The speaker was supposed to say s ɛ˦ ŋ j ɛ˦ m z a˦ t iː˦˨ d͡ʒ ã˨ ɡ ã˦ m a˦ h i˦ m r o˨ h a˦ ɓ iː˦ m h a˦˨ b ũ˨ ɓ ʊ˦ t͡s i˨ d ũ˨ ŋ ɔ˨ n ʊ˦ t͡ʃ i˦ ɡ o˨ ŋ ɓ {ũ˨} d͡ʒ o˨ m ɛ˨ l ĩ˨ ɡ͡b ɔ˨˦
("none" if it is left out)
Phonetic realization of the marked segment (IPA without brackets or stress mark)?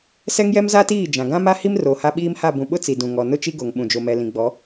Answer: ũ˨